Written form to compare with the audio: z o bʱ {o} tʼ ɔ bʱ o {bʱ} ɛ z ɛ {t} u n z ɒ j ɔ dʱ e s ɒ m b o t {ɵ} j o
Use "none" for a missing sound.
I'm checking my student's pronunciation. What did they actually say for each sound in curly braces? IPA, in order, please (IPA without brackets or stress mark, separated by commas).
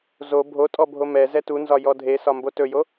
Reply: o, m, t, ɵ